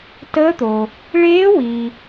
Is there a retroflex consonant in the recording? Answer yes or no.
yes